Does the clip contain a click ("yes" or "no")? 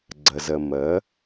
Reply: yes